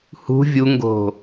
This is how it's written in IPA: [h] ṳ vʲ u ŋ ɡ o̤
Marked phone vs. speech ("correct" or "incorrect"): correct